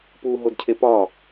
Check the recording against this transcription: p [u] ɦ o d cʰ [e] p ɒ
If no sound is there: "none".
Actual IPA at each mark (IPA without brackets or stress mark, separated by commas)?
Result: u, e